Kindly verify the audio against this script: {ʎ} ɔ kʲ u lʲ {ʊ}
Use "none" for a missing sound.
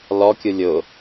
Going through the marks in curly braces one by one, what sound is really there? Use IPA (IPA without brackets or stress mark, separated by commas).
l, ʊ